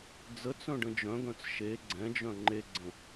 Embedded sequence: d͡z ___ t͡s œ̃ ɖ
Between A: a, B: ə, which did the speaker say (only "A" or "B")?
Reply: B